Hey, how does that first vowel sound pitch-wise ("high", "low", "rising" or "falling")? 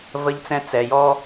high